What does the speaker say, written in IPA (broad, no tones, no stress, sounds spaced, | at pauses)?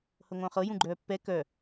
h ɤ ŋʷ œ̃ χ ɤ j ũ ɡ͡ǃ œː pː ɛ k œ